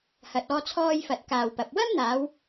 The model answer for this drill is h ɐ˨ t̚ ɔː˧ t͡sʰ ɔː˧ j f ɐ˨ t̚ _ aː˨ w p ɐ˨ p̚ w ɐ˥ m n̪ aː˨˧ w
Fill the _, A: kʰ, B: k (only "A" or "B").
B